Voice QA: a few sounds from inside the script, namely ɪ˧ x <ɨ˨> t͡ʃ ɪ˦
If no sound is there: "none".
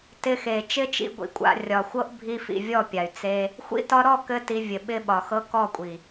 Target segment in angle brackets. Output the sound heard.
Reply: e˨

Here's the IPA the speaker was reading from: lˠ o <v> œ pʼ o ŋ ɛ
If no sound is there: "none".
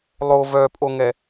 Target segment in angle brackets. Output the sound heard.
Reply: v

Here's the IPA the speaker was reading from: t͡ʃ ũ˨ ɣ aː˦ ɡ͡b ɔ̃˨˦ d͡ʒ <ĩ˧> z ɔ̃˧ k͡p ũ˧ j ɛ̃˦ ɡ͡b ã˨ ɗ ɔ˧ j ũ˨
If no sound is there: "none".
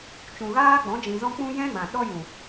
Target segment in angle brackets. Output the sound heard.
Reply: ĩ˨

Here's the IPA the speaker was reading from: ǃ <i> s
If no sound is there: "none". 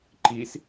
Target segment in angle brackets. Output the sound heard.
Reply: i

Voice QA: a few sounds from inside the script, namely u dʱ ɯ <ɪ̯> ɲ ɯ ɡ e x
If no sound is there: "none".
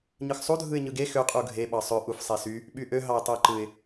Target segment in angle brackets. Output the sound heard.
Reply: ɪ̯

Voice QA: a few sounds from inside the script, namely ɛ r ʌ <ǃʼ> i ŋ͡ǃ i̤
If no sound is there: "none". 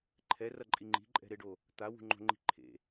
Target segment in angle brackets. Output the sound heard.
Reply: ǃʼ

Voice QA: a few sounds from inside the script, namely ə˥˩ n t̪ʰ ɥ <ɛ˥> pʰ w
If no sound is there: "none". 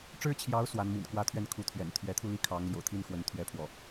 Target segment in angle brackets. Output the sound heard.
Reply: ɛ˥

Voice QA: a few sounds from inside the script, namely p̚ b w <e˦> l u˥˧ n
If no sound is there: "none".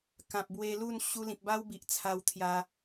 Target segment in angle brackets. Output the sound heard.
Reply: e˧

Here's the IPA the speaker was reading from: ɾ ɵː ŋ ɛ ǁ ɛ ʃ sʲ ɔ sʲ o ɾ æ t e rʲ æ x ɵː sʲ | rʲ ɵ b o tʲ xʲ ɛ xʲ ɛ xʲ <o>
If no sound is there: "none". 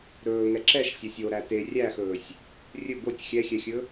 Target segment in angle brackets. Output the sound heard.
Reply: ɵ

